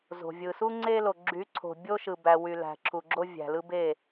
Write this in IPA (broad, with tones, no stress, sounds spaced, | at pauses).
z o̤˨ vʲ ɯ˨ s u˦ ŋ͡ǀ e˦ l o˨ ɡ͡ǁ y˨˦ ǀʰ o̤˨ bʲ o˦ ʃ ɯ˨ b æ˨ w y˨ l æ̤˨ ǁʰ u˨ ɡ͡ǁ o˦ vʲ æ̤˨ l ɯ˦ b e˦˨